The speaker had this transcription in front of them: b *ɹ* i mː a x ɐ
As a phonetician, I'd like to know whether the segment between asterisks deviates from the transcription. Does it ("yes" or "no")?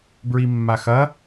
no